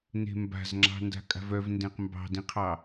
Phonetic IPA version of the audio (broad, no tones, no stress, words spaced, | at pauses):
ne̤mba̤zŋ͡ǁɑ̤ nda̤kʼa̤vœvndẽq mbɑ̤dĩqʰɑ